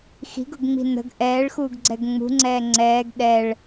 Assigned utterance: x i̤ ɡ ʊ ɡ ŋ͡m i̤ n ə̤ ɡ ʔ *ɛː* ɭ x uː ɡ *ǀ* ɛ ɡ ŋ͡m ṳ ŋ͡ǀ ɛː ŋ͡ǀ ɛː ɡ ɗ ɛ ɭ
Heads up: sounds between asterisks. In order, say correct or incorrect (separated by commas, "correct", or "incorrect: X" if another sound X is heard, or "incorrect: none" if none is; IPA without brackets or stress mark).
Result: correct, incorrect: ɡ͡ǀ